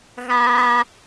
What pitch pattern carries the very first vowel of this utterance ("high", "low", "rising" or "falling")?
high